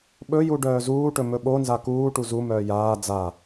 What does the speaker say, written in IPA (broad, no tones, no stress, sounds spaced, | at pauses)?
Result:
ɓ ɵ j u ɖ œː z uː ʈ ɵ m ɵ ɓ o n z a k uː ʈ u z u m œː j aː d͡z a